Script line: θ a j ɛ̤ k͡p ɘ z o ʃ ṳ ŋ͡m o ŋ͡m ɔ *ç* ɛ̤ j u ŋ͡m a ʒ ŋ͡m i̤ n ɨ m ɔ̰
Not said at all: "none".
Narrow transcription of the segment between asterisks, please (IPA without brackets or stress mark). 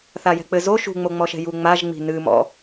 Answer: ʃ